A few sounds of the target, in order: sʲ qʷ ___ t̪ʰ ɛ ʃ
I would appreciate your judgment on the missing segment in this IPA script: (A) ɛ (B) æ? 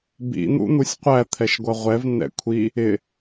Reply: B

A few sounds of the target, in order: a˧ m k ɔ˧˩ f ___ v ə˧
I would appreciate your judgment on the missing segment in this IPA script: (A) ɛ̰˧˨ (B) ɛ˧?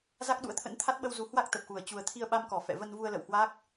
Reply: A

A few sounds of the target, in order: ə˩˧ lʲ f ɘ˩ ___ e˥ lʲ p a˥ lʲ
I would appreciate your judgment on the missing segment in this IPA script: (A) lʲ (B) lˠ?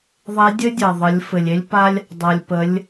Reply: A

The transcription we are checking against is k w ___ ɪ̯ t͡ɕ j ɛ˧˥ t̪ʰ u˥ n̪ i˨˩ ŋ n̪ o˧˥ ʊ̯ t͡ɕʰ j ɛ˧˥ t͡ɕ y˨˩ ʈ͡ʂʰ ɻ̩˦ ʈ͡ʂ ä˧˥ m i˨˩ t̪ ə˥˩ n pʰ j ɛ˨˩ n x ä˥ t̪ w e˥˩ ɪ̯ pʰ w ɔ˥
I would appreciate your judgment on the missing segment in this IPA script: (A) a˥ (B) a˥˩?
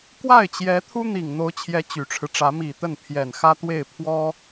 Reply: B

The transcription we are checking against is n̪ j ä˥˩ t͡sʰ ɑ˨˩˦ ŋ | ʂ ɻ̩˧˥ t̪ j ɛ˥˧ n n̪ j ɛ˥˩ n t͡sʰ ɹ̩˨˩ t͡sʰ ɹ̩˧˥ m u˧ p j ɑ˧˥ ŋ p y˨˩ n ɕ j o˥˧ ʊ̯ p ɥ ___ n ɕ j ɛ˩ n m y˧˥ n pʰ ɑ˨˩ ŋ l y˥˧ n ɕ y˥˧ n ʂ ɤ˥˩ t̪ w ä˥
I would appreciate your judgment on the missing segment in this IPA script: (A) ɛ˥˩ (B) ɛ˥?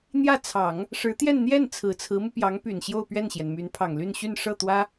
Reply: A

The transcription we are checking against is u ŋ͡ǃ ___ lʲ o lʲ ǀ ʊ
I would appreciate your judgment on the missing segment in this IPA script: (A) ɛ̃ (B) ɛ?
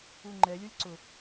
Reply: B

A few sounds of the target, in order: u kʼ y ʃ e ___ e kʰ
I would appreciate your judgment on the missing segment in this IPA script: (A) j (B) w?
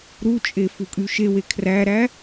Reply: B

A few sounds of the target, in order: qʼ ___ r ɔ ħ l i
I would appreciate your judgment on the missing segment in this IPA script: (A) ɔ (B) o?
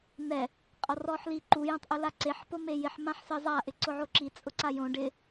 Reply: A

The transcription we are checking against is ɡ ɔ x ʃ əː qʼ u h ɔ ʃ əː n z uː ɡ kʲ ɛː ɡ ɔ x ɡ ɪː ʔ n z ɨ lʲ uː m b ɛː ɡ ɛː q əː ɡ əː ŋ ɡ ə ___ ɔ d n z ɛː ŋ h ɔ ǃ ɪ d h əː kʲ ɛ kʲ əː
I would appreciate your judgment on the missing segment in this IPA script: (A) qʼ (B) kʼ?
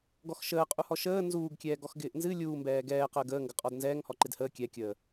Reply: A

